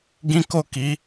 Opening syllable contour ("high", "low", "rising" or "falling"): high